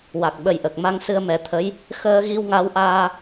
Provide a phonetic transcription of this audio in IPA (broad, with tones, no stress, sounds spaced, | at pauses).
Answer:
w a˨˩ k̚ ɓ ə˨˩ j ʔ ə˨˩ k̚ m a˧ ŋ s ɨ˧ ə̯ m ɛ˨˩˦ t̪ʰ ə˧˥ j | x əː˧ ɣ i˧ w ŋ a˧˥ w ʔ aː˧